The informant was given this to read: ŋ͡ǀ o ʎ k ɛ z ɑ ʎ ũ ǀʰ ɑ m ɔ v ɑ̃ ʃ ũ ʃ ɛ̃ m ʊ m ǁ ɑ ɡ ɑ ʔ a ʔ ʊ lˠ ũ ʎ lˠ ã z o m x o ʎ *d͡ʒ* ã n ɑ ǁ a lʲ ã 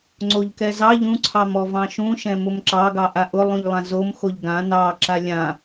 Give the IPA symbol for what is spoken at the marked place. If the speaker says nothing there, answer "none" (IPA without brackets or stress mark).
ɡ